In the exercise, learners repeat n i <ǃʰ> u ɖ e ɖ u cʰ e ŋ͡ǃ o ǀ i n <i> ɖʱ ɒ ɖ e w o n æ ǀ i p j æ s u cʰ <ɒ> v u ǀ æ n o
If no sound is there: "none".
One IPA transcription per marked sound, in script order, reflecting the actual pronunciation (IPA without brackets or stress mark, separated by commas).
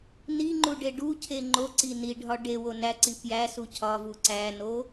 ŋ͡ǃ, i, ɒ